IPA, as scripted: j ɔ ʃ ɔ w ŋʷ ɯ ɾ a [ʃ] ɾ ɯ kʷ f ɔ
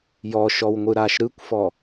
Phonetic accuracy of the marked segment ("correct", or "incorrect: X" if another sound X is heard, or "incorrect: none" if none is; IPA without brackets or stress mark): correct